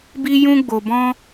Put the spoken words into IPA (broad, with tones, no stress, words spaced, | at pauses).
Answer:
bi˦jũ˦ɡ͡bo˧ bɔ̃˦